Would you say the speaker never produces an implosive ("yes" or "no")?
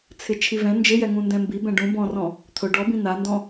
yes